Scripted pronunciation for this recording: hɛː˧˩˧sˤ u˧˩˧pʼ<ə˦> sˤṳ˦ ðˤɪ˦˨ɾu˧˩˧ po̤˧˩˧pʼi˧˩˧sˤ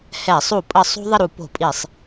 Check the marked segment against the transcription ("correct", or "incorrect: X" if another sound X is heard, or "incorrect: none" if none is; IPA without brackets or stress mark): incorrect: ə˧˩˧